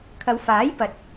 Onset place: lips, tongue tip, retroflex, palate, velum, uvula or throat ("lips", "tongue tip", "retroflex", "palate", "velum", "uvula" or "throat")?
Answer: velum